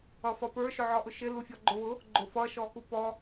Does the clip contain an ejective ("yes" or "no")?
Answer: no